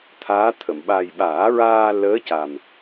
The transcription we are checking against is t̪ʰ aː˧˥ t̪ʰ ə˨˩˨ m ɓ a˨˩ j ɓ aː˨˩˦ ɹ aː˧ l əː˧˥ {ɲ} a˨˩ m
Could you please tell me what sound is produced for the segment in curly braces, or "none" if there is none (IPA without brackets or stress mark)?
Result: c